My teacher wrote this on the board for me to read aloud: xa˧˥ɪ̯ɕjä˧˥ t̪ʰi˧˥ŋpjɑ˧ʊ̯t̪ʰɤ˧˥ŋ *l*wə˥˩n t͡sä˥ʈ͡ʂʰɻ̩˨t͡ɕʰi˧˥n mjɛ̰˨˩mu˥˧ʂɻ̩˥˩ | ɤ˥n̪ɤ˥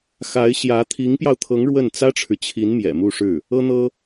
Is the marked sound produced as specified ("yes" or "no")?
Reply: no